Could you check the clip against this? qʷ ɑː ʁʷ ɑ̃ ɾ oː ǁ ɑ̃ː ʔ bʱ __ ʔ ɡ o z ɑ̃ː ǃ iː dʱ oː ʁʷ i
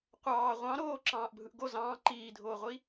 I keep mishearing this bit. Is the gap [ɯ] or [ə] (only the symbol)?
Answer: ɯ